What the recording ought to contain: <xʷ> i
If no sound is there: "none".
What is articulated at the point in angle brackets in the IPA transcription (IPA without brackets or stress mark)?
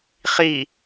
χ